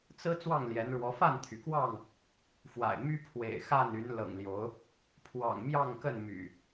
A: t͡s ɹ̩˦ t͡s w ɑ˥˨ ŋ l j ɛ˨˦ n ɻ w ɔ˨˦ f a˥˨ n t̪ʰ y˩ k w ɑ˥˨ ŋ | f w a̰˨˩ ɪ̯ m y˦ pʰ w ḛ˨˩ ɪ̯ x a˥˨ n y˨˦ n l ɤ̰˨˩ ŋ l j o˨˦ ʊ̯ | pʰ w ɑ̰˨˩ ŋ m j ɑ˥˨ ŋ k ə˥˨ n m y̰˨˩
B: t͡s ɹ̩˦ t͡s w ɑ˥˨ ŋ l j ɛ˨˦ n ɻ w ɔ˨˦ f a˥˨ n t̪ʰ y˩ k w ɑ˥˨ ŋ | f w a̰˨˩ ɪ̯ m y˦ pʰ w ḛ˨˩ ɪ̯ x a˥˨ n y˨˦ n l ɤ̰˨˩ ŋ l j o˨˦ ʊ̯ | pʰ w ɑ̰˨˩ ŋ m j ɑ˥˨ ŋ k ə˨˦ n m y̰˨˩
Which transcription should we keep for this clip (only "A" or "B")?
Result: A